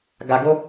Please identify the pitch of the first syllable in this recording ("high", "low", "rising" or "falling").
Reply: low